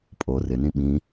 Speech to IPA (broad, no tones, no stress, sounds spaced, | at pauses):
pʼ o r ɪ n ĩ ɓ ĩ